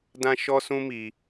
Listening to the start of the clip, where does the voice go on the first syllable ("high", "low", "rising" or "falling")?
high